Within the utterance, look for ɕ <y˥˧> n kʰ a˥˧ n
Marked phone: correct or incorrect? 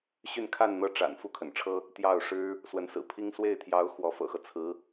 correct